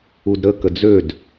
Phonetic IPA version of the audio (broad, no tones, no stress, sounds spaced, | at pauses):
u d ɾ ə k ə d͡z ø d